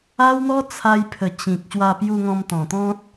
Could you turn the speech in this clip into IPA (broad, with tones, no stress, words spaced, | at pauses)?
a˦wn̪ɔ˦ t͡sʰa˧jpʰə˨˩ t͡ɕĩ˨k̚ ɕwa˧pju˧ŋɔ̃˧m t̪ɔ̃˨˩t̪ɔ̃˦t̚